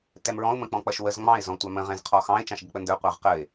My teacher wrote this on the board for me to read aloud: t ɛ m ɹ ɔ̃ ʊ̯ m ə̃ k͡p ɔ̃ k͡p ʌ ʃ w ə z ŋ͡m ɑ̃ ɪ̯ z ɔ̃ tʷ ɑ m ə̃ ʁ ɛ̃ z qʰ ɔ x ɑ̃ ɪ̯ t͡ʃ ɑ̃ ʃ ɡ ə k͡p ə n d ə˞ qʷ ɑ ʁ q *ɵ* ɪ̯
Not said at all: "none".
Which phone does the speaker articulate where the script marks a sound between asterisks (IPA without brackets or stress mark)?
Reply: ə